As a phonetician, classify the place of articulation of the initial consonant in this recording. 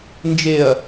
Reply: alveolar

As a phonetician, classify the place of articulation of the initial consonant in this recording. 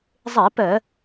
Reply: alveolar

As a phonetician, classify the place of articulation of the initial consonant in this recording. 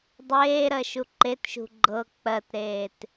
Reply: alveolar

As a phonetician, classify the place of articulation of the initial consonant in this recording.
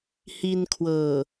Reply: glottal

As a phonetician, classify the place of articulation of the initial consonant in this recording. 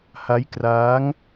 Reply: glottal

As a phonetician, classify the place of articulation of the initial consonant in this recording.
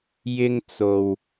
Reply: palatal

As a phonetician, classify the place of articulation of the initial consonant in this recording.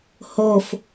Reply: glottal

